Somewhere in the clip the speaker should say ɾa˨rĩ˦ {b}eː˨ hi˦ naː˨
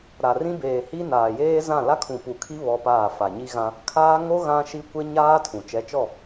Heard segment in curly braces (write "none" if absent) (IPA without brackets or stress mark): b